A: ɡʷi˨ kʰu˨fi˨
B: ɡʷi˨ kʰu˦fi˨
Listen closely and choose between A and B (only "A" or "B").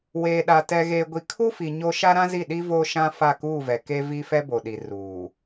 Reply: B